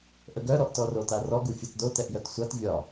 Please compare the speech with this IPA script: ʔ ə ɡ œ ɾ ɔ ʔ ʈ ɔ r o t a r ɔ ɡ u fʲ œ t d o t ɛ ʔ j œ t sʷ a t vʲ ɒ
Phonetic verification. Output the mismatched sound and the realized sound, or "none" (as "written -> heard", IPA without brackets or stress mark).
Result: ʈ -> t